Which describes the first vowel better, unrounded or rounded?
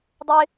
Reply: unrounded